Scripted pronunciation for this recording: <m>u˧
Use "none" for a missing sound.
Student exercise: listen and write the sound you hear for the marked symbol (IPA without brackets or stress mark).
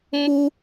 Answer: m